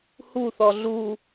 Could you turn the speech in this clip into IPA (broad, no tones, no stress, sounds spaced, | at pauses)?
h u θ ɔ ɮ u